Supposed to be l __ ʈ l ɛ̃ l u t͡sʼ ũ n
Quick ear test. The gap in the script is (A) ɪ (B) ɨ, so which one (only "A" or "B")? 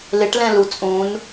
A